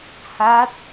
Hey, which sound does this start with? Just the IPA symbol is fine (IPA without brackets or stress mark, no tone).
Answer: h